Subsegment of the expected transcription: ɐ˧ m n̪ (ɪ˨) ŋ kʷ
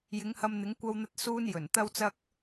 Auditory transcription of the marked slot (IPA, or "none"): ɪ˨˥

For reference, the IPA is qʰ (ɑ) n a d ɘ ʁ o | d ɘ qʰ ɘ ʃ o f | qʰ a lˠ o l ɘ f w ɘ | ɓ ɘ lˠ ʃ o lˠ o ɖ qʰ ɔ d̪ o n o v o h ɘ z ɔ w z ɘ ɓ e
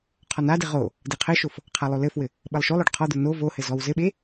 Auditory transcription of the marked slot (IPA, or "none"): ɔ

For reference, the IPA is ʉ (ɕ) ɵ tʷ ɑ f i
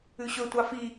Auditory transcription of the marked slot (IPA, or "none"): ɕ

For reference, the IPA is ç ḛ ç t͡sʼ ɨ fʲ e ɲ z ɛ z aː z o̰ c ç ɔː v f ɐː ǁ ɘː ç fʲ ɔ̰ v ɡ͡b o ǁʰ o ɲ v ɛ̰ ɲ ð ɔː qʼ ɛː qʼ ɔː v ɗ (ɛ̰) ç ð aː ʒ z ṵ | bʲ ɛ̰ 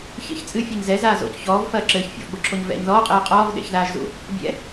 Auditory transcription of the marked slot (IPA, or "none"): ḛ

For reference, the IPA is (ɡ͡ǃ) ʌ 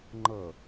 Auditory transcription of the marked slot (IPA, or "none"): ŋ͡ǃ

